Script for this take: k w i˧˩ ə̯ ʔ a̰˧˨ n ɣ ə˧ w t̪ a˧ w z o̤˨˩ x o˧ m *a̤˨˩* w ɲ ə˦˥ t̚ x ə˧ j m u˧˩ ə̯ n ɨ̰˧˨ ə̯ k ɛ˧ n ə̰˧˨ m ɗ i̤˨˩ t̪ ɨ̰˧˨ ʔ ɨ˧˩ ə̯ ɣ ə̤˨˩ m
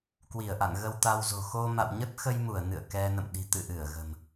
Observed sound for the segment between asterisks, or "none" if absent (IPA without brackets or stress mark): a̰˧˨